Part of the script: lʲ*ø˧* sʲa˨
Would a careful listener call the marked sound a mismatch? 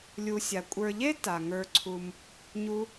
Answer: yes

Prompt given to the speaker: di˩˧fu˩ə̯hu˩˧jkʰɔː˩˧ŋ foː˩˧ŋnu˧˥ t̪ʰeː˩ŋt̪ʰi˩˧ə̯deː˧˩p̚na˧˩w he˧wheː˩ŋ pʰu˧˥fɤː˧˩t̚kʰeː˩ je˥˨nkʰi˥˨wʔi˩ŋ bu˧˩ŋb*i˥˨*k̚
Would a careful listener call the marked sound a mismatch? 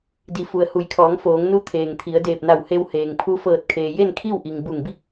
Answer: no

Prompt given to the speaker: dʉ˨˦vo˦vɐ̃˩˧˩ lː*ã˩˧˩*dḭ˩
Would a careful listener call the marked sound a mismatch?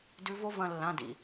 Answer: no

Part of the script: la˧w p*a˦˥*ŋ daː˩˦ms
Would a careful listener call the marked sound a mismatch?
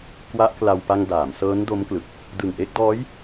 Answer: yes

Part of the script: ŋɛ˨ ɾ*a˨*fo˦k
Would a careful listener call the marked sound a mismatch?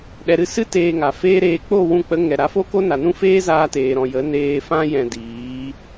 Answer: yes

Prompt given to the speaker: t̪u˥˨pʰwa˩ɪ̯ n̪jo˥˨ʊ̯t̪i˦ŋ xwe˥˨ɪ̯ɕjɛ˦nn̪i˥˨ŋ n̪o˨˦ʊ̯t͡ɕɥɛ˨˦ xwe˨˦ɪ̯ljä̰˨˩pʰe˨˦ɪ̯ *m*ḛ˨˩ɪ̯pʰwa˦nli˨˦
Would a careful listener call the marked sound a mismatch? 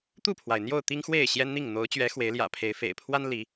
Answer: yes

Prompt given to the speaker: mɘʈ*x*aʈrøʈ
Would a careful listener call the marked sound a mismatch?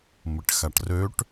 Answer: no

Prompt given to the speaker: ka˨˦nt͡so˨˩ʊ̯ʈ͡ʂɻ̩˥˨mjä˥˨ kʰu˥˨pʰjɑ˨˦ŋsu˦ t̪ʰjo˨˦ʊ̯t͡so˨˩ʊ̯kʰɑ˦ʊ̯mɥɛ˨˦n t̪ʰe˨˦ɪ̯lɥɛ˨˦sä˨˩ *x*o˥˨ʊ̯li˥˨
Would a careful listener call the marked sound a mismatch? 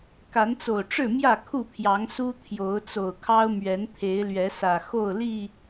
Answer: no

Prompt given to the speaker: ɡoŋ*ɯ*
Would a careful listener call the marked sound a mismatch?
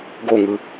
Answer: no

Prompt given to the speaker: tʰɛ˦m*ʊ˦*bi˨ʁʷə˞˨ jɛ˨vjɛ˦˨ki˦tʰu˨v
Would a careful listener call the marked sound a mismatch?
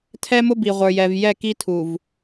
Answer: no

